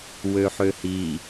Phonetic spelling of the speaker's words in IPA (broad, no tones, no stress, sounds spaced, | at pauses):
w ø ħ ø h i